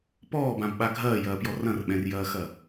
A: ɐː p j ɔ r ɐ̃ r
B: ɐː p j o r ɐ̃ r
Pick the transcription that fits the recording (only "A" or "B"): A